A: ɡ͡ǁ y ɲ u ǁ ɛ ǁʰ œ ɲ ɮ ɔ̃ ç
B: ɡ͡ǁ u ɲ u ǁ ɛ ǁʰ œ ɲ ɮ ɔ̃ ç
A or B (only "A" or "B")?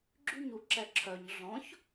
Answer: A